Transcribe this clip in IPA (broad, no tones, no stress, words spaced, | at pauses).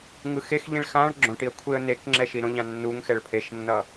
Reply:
ŋɯxexʎĩɭ xãɭ ɡ͡ǁõʈiə̯ kʷʰeə̯nekŋ͡ǁɛ ʃiɾõʎã nːuŋ xɛɭpʰeʃnːʌ